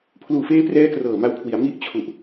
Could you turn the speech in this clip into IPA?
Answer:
pʰ l uː˨˩ f eː˦˥ p r ɛː˦˥ k r ɤː˨˩ m a˧ w kʰ w i˩˦ a̯ m i˥˩ ʔ t͡ɕʰ u˨˩ ʔ

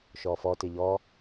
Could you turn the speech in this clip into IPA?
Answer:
ʃ ɔ f ɔ t ɪ ʎ ɔ

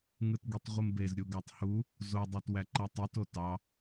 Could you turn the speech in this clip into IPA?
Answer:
ŋ ɯ t ɡ i tˤ ʁʷ ɯ m b e z ɾʲ u ɡ ɑ tˤ h u | z o dˤ ɑ t w æ ǃ æ tˤ i t o t ɑ

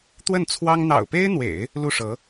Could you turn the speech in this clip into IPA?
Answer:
t̪ w ə˥˩ n t͡sʰ w ɑ˥ ŋ n̪ ɑ̰˨˩ ʊ̯ p e˥ ɪ̯ n̪ w ḛ˨˩˦ ɪ̯ | l u˥˩ ʂ ɤ˧˥

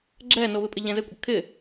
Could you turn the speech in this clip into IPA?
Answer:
ɡ͡ǁ ɛ n o β ɪ pʼ ɪ ʎ ɛ̃ z ɘ kʷʼ ɐ kʰ ɪ

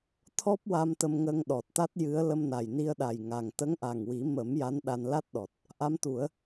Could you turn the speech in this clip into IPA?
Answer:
t̪ʰ ɔ˦˥ p̚ w a˧ m t̪ ə˧ m ŋ ə˧ ŋ ɗ ɔ˨˩ t̚ t̪ a˦˥ t̚ j ɨ˧˥ ə̯ l ə˧ m n a˨˩ j n i˧ ə̯ ɗ a˨˩ j ŋ a˨˩ ŋ t̪ ə˧˥ ŋ ʔ a˨˩ ŋ w i˨˩˦ m ə˨˩˦ m j a˧˥ n ɗ a˧ n l a˦˥ t̚ ɗ ɔ˨˩ t̚ | ʔ a˧˥ m t̪ u˨˩˦ ə̯

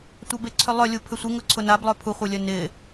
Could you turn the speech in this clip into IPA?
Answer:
tʷ a b e ǀʰ ʏ lˠ œ lʲ u pʰ ʏ sʷ ɪ ŋ ʊ ǀʰ ʊ n a b lˠ œ pʰ u χʷ e lʲ œ n ɪ

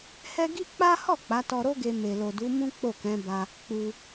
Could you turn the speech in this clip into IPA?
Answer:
h ɛ˦ ɡ i˦ k͡p a˦ h ɔ˦˨ k͡p a˨˦ t ɔ˧ ɾ o˦ ɡ e˧ m e˨ l o˨ d u˨˦ m ũ˦ k͡p o˦˨ k ɛ̃˨˦ b a˧ | k͡p u˧

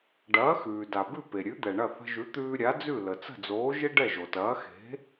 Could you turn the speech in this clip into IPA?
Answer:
ɖ ɐː˩˥ x ʉː˩ d a˩ b ʉ˥˩ p e˩ ɾʲ ʉ˩˥ d̪ ɛ˩ ɳ ɐ˥˩ θ ə̤˧ ʒ ʉ˩˥ t̪ ʉː˧ ɾʲ a˩˥ d͡z ʉ˥˩ l ə˩ t͡s ə̤˥˩ d͡z oː˩˥ ʒ e˥ ɖ ɛ˥˩ ʒ o˩ t ɐː˩˥ x e̤˩˥

